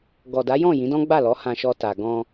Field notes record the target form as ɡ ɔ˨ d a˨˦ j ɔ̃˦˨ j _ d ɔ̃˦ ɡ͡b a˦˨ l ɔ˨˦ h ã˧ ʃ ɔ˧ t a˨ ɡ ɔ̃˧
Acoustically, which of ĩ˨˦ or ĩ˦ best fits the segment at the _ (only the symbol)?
ĩ˨˦